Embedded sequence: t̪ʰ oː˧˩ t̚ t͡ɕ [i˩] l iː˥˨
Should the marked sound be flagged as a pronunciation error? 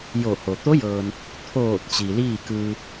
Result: no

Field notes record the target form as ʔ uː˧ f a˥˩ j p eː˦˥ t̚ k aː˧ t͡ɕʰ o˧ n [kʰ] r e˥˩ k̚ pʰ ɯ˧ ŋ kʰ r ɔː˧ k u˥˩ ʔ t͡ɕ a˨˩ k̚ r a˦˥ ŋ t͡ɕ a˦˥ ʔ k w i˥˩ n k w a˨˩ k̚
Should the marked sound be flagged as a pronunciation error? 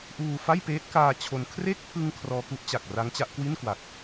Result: no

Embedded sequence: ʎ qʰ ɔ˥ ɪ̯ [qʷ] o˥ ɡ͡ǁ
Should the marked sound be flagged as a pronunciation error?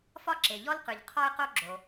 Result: yes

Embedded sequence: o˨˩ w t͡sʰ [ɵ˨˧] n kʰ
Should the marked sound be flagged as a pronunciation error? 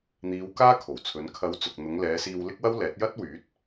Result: no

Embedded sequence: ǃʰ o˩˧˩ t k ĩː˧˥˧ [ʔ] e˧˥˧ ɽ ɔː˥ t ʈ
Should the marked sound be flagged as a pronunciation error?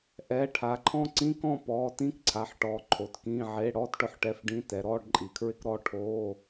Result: yes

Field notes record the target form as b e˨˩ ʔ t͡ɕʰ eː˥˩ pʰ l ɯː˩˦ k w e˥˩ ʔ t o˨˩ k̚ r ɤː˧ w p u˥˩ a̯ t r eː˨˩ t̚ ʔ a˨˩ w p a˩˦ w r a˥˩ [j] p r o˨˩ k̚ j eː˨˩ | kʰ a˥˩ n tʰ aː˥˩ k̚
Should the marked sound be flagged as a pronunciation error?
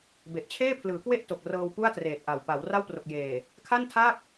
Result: yes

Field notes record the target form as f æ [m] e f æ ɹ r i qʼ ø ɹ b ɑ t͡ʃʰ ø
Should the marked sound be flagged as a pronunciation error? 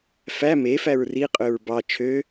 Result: no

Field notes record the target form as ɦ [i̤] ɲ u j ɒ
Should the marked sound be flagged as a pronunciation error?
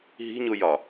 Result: no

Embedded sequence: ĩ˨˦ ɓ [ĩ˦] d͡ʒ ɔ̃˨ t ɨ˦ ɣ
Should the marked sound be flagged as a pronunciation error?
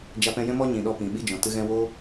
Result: yes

